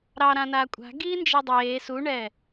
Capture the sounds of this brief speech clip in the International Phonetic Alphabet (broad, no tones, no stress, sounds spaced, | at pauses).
ɾ ɑ ɾ ã n aː kʷʼ a̤ ɡ iː n d͡ʒ i dˤ eː s u ɳ ɛ